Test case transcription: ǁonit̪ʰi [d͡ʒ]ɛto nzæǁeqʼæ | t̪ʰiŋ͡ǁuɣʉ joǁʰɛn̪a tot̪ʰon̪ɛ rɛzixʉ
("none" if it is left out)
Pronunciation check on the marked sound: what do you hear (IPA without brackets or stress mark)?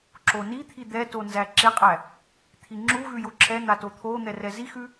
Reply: d̪